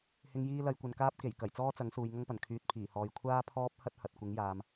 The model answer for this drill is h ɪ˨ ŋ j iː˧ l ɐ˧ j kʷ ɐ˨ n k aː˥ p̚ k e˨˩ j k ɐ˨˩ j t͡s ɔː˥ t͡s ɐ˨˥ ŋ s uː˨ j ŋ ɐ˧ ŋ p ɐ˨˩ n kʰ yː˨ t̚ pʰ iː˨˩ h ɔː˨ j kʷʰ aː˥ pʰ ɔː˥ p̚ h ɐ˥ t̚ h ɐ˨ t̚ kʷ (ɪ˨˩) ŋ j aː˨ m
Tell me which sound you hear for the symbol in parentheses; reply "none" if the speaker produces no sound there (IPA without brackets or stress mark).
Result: ɪ˨˥